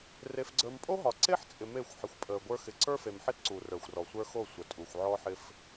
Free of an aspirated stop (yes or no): yes